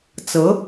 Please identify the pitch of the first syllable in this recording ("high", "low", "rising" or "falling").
rising